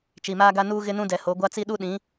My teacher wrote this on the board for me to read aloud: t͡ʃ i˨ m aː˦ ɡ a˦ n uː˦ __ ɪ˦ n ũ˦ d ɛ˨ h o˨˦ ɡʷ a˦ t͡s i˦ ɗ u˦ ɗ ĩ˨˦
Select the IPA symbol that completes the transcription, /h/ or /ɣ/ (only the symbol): ɣ